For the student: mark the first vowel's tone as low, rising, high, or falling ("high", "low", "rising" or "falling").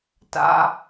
low